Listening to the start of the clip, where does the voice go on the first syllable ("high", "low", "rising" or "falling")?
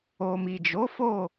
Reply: low